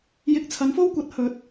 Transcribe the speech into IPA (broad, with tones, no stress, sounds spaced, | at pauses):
j ɪ˧ k̚ t͡sʰ ɐ˨˥ n f o˥ w kʷ ɐ˨˥ t̚ h ɵ˨˥ t̚